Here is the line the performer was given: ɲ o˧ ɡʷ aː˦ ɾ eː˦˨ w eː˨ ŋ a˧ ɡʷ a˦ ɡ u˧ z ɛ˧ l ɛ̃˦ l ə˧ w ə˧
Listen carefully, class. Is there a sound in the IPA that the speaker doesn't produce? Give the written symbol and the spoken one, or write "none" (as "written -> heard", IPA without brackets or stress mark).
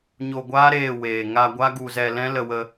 none